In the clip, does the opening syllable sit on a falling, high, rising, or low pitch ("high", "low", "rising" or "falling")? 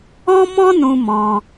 high